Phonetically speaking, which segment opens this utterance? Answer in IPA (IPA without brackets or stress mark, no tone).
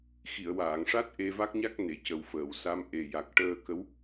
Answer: x